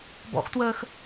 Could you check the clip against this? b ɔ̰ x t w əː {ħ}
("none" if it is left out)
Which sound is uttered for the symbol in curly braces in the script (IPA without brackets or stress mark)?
x